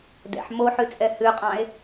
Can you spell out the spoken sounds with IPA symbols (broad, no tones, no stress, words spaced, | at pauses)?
dɛ̰ħ moħʉt͡sʼɛ hʉqʼɑ̃e̯